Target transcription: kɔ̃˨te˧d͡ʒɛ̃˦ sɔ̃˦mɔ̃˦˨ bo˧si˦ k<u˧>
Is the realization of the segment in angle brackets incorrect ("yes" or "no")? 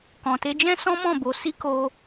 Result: yes